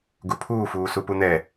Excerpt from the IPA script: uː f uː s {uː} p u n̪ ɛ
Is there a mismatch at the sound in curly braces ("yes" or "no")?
yes